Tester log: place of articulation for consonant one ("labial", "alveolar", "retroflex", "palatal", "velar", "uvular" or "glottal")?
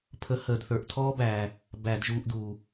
labial